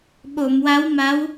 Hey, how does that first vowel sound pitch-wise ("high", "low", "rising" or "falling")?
low